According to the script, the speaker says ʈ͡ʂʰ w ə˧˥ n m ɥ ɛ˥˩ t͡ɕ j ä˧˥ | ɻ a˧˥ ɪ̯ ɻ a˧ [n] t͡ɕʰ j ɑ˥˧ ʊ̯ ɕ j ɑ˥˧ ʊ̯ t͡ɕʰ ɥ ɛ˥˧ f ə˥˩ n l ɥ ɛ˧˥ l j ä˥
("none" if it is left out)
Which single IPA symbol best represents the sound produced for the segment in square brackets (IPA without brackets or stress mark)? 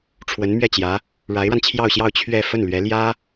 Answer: n